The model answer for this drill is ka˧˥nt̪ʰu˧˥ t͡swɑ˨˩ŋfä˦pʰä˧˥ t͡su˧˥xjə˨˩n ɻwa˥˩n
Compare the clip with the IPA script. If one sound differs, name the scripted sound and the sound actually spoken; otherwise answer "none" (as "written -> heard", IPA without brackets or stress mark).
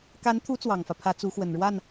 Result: j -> w